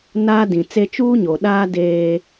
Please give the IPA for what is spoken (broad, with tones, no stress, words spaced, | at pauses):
naː˦dĩ˨t͡se˦ t͡ʃuː˦ɲo˨ɗaː˦ deː˦